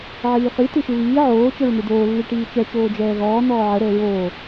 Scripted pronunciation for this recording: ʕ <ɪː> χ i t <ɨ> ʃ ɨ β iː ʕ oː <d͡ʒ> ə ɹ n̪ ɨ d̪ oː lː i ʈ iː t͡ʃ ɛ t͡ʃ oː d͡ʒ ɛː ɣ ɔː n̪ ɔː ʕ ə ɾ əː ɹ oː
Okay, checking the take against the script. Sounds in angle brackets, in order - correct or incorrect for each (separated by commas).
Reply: incorrect, correct, incorrect